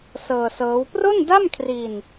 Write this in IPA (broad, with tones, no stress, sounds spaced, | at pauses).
s ɤː˧ s ɤː˦˥ w p r o˥˩ n d a˥˩ m kʰ r i˧ n